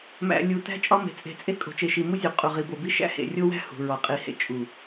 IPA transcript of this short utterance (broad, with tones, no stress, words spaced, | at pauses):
mæ̰˨ lʲu˨tæ̤˦ t͡ʃʼɒ˦me̤˨ t͡sʼe̤˦ t͡sʼe˦kʼo̤˨t͡ʃe˨ʃi˨ mu˦zʲu˨ qʼu˨ʁi˨bo˨bi˦ ʃæ̰˦hḛ˨rʲo˦wæ̤˦ hṳ˨ ɹɒ˨qʼi˨hḛ˨ t͡ʃʼu˨